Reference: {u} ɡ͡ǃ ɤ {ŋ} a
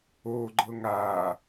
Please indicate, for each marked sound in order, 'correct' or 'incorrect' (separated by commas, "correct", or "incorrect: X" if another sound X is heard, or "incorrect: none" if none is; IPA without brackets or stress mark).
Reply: incorrect: o, correct